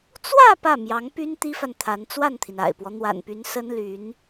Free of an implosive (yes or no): yes